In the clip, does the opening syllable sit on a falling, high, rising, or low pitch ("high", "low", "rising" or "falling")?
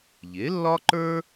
rising